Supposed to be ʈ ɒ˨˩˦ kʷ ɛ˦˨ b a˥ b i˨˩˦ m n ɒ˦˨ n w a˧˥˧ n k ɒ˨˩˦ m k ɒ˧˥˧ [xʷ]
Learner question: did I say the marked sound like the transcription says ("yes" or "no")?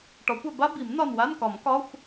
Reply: yes